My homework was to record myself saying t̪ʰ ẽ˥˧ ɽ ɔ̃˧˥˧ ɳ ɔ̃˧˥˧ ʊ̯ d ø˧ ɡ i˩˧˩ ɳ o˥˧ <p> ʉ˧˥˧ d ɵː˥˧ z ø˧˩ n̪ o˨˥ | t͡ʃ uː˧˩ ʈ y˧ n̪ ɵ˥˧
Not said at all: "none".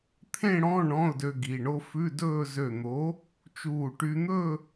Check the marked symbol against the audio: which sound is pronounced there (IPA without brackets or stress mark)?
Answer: f